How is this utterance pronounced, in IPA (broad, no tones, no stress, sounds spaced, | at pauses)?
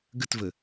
ɡ ə t v ə